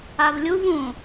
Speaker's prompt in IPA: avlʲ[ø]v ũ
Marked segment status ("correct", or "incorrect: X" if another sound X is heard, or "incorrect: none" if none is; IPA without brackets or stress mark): incorrect: u